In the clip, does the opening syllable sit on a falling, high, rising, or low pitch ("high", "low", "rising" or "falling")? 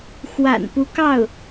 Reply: low